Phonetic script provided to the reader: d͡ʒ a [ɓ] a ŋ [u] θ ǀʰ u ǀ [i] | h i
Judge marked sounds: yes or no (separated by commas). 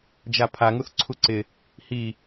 no, yes, no